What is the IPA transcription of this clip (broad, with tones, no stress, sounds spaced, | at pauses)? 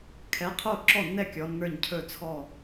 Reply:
kʰ ɛ˨˥ qʰ o˥˩ ǁ ɔ˥˩ nː ɛ˥˩ kʲ ɔ˨˥ nː ə˞˥˩ ɲ cʰ ɵ˥˩ t͡sʰ ɔ˥˩